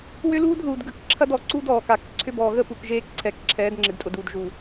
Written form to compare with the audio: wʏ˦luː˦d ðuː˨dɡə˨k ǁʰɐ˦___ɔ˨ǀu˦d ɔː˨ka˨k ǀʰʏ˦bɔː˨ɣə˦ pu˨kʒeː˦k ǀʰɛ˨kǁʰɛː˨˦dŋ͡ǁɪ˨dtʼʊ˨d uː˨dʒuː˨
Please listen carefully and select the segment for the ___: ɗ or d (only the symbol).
d